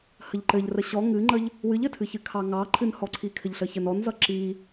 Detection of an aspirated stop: present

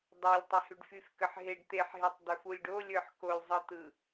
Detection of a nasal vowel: absent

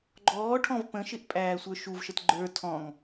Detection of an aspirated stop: present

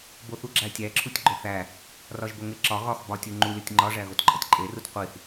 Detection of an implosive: absent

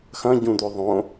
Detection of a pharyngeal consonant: absent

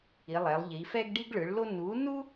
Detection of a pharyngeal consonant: absent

